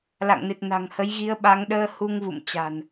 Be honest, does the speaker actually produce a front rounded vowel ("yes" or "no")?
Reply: no